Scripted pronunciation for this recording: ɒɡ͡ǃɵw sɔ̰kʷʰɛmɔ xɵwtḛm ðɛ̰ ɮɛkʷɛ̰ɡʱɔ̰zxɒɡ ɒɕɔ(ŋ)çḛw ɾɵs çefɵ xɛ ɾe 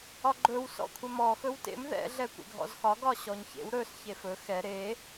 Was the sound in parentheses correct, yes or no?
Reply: no